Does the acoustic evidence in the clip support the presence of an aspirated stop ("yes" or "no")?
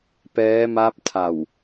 yes